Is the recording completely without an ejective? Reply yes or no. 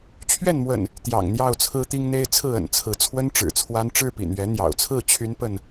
yes